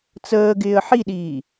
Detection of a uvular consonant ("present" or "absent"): absent